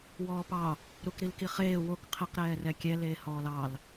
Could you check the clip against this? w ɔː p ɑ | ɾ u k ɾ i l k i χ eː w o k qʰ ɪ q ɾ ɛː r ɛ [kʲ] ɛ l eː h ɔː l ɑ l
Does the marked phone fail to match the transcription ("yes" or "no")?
no